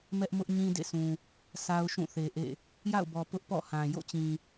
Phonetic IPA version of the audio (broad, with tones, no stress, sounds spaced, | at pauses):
m ɛ˦ ʔ m ʊ˦ ʔ ɲ ĩ˦ d ḛ˦˨ s ũ˨ | sʰ a˦ ʊ̯ ʃ ũ˦˨ θ e˨ ʔ ḛ˦˨ | j a̰˦˨ ʊ̯ b ɔ˨ p ʊ˦ ʔ p ɔ̰˦˨ h ã˨ j o̰˦˨ t͡ɕ ĩ˨